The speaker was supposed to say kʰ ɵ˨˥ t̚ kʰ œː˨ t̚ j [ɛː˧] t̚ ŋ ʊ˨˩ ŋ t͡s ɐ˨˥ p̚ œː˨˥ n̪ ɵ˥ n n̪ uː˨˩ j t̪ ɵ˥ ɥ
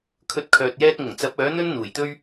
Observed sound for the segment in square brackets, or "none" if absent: ɛː˧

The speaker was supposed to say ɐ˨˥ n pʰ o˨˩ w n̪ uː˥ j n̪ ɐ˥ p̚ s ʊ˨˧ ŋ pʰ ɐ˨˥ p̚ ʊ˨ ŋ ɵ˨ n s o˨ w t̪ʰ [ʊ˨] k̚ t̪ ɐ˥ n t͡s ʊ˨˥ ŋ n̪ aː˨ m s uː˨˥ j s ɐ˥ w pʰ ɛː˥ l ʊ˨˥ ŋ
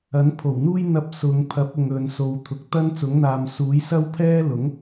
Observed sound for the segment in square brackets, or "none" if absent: ʊ˨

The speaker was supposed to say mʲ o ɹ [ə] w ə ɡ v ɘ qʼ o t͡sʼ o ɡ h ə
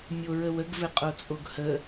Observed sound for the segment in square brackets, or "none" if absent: ə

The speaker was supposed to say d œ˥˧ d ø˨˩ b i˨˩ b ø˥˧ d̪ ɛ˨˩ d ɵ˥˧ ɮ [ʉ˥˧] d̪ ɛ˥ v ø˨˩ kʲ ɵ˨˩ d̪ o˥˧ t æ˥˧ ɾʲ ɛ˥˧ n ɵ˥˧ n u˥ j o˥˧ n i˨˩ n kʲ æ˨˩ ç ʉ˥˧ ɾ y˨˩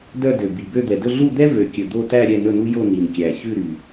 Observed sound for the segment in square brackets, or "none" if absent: u˥˧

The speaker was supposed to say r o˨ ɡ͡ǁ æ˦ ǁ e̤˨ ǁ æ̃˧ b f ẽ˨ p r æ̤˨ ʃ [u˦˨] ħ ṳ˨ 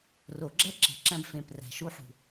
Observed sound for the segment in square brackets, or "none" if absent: u˧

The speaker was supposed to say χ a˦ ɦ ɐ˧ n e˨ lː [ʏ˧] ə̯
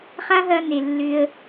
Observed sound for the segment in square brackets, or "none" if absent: ʏ˧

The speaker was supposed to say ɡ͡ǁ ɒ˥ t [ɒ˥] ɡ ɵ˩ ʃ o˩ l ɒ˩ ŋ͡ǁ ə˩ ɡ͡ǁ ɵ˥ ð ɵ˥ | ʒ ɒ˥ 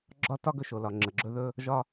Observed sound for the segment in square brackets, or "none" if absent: ɒ˥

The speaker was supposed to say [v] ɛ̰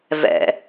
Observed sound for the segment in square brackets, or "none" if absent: v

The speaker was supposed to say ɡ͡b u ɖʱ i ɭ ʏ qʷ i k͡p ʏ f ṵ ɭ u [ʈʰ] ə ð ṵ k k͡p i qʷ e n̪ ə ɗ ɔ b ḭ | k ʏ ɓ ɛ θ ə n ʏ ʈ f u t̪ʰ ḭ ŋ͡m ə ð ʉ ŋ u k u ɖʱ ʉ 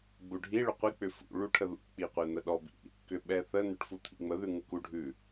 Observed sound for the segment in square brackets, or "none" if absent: ʈʰ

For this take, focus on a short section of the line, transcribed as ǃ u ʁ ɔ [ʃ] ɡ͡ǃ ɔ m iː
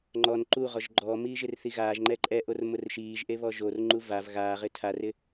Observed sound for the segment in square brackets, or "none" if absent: ʒ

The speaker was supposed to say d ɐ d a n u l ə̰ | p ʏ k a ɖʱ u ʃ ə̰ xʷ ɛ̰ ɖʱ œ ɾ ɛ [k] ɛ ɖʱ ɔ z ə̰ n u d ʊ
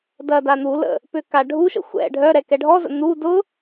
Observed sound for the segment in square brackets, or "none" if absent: k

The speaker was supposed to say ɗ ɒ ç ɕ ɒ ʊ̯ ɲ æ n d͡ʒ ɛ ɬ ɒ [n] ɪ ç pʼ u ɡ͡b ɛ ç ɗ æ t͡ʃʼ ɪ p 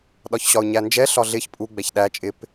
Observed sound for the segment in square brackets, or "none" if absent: ɮ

